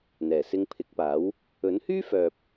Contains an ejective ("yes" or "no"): no